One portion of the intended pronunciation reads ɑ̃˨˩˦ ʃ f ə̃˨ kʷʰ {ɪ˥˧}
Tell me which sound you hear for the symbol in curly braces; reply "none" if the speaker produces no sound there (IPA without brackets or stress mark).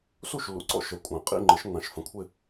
ɪ˥˧